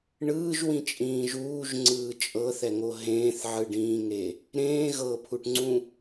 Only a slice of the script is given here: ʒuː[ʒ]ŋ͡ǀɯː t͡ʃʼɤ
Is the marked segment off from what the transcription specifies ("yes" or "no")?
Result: no